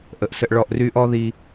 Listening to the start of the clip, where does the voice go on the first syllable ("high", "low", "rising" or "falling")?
low